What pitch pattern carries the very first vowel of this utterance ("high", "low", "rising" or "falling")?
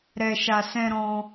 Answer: low